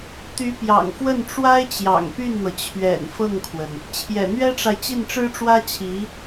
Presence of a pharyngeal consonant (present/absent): absent